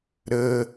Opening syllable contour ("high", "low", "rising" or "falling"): low